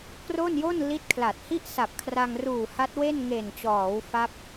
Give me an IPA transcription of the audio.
k r o˥˩ n j o˥˩ n l i˦˥ t̚ kʰ l a˨˩ t̚ h i˥˩ ʔ s a˨˩ p̚ kʰ r a˧ ŋ r uː˨˩ h a˦˥ t̚ w e˥˩ n ŋ e˨˩ n t͡ɕ ɔː˩˦ w f a˦˥ p̚

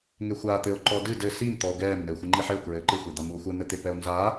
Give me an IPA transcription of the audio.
ŋ e xʷ aː t̪ ɘ o̯ ǃ ɔ d ɨ d ɘ s i m t̪ ɔ o̯ ɡ ɛː m n ɘ e̯ xʷ ɨ ŋ͡ǃ i ħ ɘ o̯ k ɹ ɘː ǃ ɨ xʷ e d̪ a m u o̯ xʷ ɘ n̪ ɘ t̪ e p ɛ o̯ n z aː

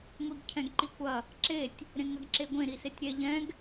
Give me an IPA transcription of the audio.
ŋʷ i ɡ cʰ ɛ̃ ɡ ǃ i kʷ ɐ | ǁ e tʲ | ɾ ẽ ŋ ɐ ɡ ǁ e ɡʷ ẽ ɾ i s e tʲ ɾʲ ɛ ʎ ɛ̃ ɡ

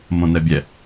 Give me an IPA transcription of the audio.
m õ n ɛ bʲ ɛ

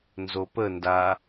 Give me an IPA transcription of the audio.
n z o p ə n d a

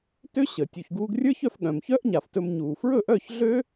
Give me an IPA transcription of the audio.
t ø˥ ɕ əː˩ tʲ u˩ ç ɡ uː˧ ɡ rʲ ə˞˥ ç œ˩˥ f ɠ œ̃˩ m ç œː˥ ʔ ɲ a˩ f t ɵ˧ m ɲ uː˩ f ɹ ɵ˥˩ ʔ œː˥˩ ç ɮ ø˥

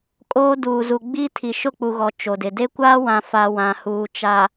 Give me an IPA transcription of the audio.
kʼ oː˦ d uː˨ z u˨ ɡ͡b iː˦ tʰ i˨ ʃ ʊ˦˨ k͡p u˨ ɣ ɔ˨ t͡ʃ o˨ d ɪ˨ d e˦ kʷ aː˦ w ã˨ f a˨ w ã˨ h uː˨ t͡ʃ a˨

